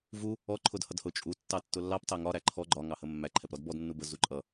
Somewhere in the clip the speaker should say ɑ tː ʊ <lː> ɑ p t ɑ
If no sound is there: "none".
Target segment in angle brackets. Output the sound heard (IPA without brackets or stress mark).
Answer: lː